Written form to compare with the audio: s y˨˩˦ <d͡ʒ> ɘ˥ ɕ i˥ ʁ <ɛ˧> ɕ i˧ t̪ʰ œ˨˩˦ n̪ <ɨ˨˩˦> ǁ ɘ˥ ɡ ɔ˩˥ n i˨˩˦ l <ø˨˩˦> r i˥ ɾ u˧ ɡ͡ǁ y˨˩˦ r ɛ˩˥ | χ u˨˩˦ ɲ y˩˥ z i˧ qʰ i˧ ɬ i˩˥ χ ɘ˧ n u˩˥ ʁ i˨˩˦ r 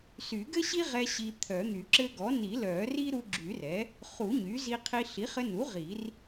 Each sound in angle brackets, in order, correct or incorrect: incorrect, correct, incorrect, incorrect

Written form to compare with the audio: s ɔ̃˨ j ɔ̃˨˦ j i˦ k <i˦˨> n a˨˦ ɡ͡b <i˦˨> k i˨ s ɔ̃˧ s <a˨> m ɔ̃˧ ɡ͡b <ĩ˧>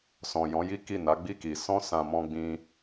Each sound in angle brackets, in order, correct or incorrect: correct, correct, incorrect, correct

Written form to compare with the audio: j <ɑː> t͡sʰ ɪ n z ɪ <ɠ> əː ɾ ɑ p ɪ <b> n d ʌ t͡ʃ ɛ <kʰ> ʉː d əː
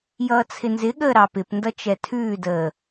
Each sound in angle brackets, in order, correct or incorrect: incorrect, correct, incorrect, incorrect

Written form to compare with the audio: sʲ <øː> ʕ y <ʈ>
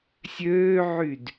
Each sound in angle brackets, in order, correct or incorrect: correct, incorrect

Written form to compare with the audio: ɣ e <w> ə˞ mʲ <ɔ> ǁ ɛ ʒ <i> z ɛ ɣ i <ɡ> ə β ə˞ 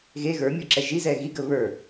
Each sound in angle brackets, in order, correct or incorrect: incorrect, correct, correct, correct

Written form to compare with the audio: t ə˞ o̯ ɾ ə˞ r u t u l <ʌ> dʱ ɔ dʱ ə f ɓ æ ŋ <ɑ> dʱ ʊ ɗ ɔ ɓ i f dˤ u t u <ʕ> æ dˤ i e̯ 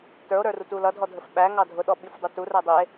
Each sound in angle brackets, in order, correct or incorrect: correct, correct, incorrect

